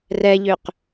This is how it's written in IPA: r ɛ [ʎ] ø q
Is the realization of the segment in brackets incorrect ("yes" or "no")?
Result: no